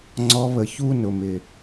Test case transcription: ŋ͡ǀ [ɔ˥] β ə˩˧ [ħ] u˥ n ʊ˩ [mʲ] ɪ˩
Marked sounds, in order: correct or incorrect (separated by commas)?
incorrect, incorrect, incorrect